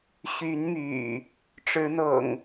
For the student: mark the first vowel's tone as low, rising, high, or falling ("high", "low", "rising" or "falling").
rising